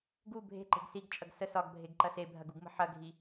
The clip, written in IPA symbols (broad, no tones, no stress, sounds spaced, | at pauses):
ɡ u bʱ e̤ ǃ e̤ ɡ s i ɡ t͡ʃʼ ɐ ɡ s ə s ɒ ɡ bʱ e ɡ ǃ ɐ s e bʱ ɐ ɡ u ɡ m ə̤ ħ ɐ ɡʱ i